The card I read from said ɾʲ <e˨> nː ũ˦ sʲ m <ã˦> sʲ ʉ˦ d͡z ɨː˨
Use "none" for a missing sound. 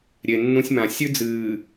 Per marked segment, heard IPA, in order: e˨, ã˨

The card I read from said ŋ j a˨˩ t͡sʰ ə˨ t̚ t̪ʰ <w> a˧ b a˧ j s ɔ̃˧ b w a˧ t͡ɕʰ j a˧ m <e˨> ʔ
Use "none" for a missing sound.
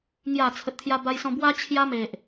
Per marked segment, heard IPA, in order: j, e˨

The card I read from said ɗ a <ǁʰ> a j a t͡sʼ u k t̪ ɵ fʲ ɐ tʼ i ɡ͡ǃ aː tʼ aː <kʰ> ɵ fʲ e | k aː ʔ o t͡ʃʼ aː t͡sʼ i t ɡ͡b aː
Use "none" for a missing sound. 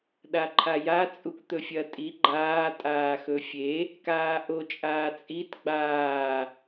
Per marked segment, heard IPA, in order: ǃʰ, x

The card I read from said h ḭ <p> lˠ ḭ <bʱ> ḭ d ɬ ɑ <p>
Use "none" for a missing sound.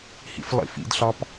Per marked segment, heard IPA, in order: f, f, p

